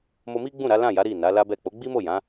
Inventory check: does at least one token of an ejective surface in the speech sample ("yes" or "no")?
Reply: no